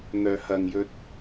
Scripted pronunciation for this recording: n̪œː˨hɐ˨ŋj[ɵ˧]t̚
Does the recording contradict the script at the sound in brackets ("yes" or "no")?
no